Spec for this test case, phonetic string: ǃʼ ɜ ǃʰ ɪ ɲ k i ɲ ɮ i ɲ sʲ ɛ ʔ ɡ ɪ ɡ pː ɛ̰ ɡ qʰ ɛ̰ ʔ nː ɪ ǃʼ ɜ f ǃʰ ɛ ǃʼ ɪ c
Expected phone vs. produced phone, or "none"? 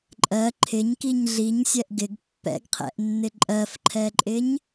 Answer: c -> ɲ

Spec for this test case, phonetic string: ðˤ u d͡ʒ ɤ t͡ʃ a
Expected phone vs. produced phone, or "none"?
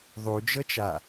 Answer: none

